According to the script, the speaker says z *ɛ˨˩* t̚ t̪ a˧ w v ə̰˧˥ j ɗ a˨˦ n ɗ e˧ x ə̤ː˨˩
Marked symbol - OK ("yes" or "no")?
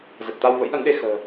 no